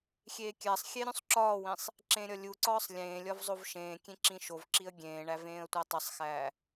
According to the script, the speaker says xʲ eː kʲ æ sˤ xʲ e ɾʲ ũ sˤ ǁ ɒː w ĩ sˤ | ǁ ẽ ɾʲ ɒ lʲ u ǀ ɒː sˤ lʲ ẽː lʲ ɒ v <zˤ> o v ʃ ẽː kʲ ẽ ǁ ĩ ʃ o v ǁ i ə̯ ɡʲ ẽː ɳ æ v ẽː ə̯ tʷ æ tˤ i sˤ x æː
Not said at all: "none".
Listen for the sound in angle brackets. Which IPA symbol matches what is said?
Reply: zˤ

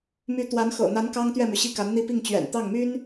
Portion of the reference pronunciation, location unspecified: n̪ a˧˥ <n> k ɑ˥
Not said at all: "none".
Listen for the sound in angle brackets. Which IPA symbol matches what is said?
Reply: n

